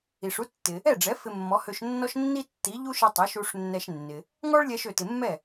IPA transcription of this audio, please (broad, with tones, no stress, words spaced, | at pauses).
i˩ʂu˥tːɪ˩ | ɛ˥˩ɖ͡ʐɛ˩˥ fɪ˧mːɔ˩˥hø˧ʃnːɔ˥ʃ nːi˥tːi˩˥ʎu˥ʃɪ˧ tˤɛ˩˥ʃu˧ʂnːɛ˧ʃnːɪ˩ | ŋɔ˥ɭlʲɛ˧ʃ ø˩tɪ˩ mːɛ˥˩